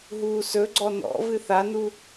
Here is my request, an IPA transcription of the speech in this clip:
ɦ uː s ɵ ɡ͡ǀ ɔ n ɔ̰ v ɨ θ a n u

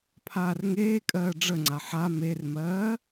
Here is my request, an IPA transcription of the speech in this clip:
pʰ aː r ŋ eː kʼ ɜː ɖ͡ʐ ə ŋ͡ǀ a ħ a m e r m ɜː

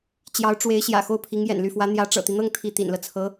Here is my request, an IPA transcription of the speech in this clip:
t͡ɕ j ɑ˧˥ ʊ̯ ʈ͡ʂ w e˧˥ ɪ̯ ɕ j ä̰˨˩ x o˥˩ ʊ̯ pʰ i˧˥ ŋ j ɛ̰˨˩ n l y˥˩ f w ä˧˥ n̪ j ä˧˥ ʈ͡ʂ ɤ̰˨˩ t̪ i˦ n̪ ɤ˥˧ ŋ t̪ʰ i˥˩ t̪ ḭ˨˩ n l ɤ˦ t͡sʰ ɤ˧˥

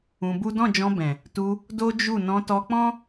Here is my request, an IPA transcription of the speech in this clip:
ũ˧ b u˦ d ɔ̃˦˨ d͡ʒ ɔ̃˧ b ɛ̃˨ | t u˧ | d o˦ d͡ʒ u˦˨ n ɔ̃˧ t ɔ˧ k͡p ɔ̃˦

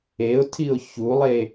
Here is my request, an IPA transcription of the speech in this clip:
e ʊ̯ tʰ i ʊ̯ ç u lˠ e

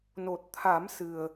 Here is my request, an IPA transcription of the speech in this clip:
n o˨˩ t̚ t̪ʰ a˨˩˦ m s ɨ˨˩ ə̯

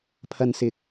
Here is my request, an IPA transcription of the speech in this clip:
pʰ ɐ˨ n s ɪ˨ k̚

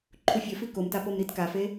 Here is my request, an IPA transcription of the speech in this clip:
ǃʰ u fʲ ɵ f i k o m t a p o m ɾ i t k a f e

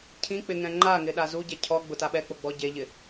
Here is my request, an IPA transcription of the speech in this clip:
cʰ ĩ k͡p ɪ ŋ ɛ̃ ŋ͡ǃ a ŋ ɪ ɗ a z u ɟ ɛ cʰ ɔ ɡ͡b ʊ t a ɓ ɛ k͡p o ɡ͡b ɔ ɟ e ʎ ɪ

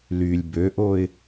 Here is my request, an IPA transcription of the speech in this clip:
l y lʲ b ø ʔ o ɪ̯

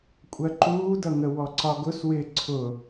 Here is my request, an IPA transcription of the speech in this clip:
kʷʼ ɜ ǃ uː d ʌ ŋ ə w ɔ ǀ ɒ ɡ ʊ s w ɪ ǀʰ ʊ

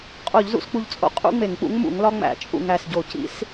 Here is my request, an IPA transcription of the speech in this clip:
qʼ o˧˩˧ ʎ z ṵ˧ s k͡p u˧˩ ʎ t͡sʼ o̰˧ qʼ ṵ˥ ŋ͡m e˧˩˧ ŋ k͡p ṵ˧˥ ŋ m ṵ˧˩˧ ŋ l ɒ˥ ŋ͡m æ̰˧˩˧ t͡ʃʼ ṵ˧˩ ŋ æ˧˩ s ɟ o˧˩˧ c ḭ˧˥ s

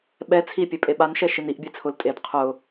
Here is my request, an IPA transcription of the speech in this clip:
ɓ ɛ t͡sʰ i pʲ e pʼ e ɓ a n ʃ ɛ ʃ i n i ʔ bʲ e t͡sʰ ʊ l tʼ e d qʰ ʊ

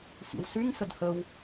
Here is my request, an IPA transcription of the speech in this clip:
x ḭ w s y ŋ s ə d h ə w

